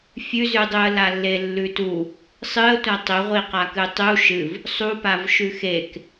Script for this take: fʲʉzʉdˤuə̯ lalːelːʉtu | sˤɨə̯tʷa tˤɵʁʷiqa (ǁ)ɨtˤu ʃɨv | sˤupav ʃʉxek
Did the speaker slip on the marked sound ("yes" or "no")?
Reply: yes